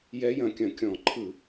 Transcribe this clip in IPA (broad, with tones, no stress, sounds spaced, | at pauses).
j ɛ˧˥ j ɐ̃˧˩˧ kʲ ɐ̃˨˩ kʲ ɔ̃˧˩˧ ǃʰ ɯ˧˩˧